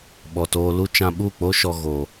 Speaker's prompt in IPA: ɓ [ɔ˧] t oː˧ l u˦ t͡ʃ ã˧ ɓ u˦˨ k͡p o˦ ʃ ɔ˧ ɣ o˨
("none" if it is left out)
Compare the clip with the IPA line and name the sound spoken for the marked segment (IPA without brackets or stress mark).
ɔ˨